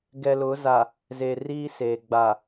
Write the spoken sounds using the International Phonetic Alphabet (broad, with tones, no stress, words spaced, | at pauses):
ɡɛ˨lʊ˨˦za˨ | ze˨riː˦ seː˨ ɡ͡ba˨